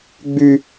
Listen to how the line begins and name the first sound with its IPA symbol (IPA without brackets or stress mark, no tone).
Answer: ɡ͡b